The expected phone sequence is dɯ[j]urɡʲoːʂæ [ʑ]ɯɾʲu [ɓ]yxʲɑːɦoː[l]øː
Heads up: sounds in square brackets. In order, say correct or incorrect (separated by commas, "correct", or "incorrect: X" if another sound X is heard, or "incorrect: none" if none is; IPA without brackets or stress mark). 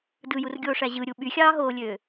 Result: correct, correct, correct, incorrect: lʲ